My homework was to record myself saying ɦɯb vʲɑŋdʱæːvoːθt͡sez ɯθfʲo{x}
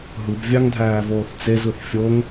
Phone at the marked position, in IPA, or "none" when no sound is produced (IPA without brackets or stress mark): ŋ